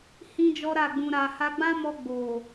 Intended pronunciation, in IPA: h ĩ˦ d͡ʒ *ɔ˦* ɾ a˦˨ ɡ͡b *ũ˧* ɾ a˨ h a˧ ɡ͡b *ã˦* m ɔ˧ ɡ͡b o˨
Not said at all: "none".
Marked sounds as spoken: ɔ˦, ũ˧, ã˦

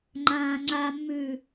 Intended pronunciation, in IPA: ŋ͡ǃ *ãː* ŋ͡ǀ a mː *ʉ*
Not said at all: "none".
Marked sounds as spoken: ãː, ʉ

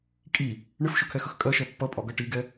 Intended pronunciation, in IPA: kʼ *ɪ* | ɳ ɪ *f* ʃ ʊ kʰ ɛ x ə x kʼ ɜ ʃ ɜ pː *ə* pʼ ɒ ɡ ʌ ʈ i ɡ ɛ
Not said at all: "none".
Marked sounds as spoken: i, f, ʌ

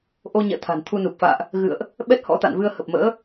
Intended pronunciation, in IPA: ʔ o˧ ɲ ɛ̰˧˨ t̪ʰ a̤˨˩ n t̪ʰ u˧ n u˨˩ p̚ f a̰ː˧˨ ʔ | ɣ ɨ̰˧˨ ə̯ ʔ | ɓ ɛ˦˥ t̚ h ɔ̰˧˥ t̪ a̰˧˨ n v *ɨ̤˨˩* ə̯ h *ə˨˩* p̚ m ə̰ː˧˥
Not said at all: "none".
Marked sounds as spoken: ɨ˧, ə˨˩

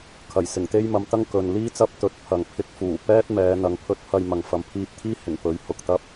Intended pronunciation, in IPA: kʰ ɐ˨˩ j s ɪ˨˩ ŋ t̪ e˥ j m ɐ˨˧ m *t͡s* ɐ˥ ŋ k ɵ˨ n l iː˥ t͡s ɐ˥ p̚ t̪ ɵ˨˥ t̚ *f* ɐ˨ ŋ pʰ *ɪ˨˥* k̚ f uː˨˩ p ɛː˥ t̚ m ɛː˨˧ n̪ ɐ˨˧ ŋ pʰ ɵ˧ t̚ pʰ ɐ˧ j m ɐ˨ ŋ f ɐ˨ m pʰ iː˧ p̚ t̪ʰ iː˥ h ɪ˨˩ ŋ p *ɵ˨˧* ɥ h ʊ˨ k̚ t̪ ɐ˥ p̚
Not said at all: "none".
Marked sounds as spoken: t̪, pʰ, ɪ˧, ɵ˨˥

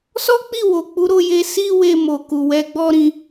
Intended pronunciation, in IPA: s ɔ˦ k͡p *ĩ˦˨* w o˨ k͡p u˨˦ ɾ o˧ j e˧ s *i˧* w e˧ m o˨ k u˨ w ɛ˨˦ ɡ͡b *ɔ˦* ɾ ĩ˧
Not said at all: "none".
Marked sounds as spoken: i˦˨, i˧, ɔ˦

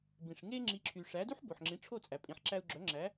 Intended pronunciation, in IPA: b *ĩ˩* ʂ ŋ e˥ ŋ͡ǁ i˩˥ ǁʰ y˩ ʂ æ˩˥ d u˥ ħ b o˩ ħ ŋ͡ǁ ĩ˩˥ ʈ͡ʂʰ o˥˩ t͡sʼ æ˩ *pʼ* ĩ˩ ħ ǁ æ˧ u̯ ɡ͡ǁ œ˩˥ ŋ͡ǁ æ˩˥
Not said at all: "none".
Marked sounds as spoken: ĩ˩, pʼ

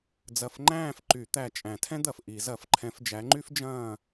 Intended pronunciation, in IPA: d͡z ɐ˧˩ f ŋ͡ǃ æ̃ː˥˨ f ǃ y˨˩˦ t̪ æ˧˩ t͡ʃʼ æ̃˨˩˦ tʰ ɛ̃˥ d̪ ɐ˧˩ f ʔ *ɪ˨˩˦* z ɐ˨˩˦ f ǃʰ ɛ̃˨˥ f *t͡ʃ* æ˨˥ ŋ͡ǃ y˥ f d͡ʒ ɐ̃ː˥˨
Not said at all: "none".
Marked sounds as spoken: i˨˩˦, d͡ʒ

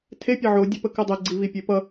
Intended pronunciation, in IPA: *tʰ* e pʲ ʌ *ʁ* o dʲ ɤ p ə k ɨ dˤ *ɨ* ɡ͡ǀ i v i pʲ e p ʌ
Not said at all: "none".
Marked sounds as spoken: tʰ, ʕ, e

